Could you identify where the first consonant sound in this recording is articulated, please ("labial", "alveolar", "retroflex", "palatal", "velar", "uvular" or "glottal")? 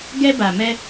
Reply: velar